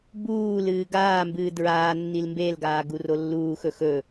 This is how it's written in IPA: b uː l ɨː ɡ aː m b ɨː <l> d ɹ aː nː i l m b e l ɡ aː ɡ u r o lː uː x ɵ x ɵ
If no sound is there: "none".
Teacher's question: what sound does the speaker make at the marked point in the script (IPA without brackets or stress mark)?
none